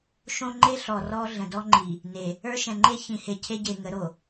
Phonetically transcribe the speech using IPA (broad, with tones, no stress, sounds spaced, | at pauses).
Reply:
ʃ õ˦ ŋ͡ǃ e˦ ɬ ɔ˨ r ɔ˦ ɮ ə̃˨ d ɔ˦ ŋ͡ǃ i˨ | n e˨ | ə˞˦ ʃ ɛ̃˨ ŋ͡ǃ e˦ ç ĩ˨ h e˨ cʰ e˦ ɟ e˨ ŋ ə˨˦ ɾ o˨